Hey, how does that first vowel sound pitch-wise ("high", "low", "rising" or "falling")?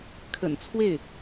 low